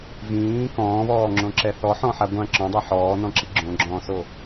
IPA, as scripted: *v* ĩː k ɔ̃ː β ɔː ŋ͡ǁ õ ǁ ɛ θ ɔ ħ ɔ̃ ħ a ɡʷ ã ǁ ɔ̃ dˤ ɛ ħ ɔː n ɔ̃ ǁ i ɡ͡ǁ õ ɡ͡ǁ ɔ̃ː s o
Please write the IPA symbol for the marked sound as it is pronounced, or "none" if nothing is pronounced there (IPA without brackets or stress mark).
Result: v